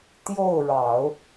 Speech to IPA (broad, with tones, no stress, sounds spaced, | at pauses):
t̪ j o˥˩ ʊ̯ ɻ ɑ˨˩˦ ʊ̯